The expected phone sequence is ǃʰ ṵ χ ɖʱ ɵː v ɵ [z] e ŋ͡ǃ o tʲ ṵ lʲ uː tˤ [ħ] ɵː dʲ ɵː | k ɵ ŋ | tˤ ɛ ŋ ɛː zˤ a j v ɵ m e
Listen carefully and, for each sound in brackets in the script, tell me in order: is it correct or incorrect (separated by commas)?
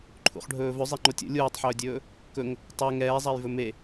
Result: incorrect, correct